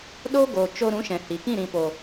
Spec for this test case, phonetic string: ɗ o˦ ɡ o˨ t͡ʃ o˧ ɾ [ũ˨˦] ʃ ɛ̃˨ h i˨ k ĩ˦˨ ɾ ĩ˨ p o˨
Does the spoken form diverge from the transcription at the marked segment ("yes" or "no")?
no